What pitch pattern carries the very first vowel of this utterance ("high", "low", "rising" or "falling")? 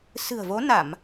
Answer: low